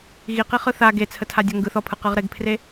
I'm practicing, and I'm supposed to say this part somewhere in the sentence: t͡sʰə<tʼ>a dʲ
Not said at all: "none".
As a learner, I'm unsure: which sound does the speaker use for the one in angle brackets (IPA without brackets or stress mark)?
tʰ